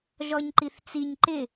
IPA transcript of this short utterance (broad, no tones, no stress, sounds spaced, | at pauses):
ʒ ɔ ɲ ǃ i θ t͡s i ɲ ǃ ɪ